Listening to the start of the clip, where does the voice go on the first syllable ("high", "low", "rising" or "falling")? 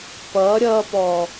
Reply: rising